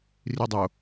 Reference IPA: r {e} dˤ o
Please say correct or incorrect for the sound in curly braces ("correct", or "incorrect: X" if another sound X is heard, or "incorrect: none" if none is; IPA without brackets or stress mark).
incorrect: i